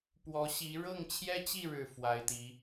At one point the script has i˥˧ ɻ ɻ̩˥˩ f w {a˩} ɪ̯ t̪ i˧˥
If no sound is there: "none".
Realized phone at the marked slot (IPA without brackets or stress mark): a˧˥